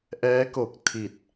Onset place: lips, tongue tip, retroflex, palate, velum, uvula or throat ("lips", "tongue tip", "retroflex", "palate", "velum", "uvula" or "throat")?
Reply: throat